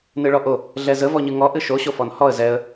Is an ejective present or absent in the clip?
absent